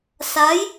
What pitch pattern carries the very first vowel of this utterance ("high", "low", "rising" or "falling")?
rising